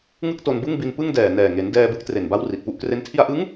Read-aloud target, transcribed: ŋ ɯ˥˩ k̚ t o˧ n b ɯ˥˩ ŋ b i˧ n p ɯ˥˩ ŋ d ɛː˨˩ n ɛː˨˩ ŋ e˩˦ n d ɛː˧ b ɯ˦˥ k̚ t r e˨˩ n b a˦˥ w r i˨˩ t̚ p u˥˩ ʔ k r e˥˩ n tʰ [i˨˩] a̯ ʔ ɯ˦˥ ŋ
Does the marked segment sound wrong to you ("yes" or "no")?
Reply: yes